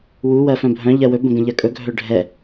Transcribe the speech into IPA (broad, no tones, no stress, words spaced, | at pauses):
wu wɜfœ̃bʱœ̃ ʎɜwɵ bə̃ɡə̃ʎɜkʼɵ ɡʱœɖʱɛ